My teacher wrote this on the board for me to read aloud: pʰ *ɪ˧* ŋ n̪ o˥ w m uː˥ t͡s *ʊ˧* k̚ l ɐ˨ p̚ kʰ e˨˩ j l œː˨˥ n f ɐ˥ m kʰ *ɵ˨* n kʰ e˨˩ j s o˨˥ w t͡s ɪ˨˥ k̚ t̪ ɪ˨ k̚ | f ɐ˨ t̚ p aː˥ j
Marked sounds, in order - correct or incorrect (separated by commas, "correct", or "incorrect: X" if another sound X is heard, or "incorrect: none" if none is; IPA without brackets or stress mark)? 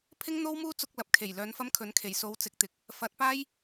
incorrect: ɪ˥, correct, incorrect: ɵ˨˥